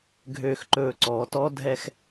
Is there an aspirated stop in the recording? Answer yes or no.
no